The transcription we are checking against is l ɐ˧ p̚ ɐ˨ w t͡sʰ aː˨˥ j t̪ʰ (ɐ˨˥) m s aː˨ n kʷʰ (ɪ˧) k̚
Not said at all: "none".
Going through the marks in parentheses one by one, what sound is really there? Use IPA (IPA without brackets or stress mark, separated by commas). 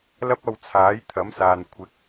ɐ˨˥, ɪ˨˥